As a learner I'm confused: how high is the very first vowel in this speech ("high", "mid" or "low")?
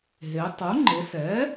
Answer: mid